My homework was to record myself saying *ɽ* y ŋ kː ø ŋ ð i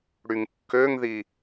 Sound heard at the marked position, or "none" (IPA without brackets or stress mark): ɽ